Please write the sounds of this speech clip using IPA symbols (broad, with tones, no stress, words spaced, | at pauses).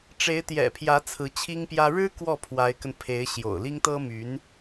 ʈ͡ʂe˧˥ɪ̯t̪jɛ̰˨˩pʰjä˧˥ t͡sʰɹ̩˧˥t͡ɕʰi˥ŋpjä˥ ɻɻ̩˥ kwɔ˥˩ pʰwa˧˥ɪ̯kə˧npʰe˧˥ɪ̯ ɕjo̰˨˩ʊ̯li˥ŋt̪ɤ˥my˧˥n